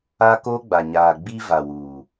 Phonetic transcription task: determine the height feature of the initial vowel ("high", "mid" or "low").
low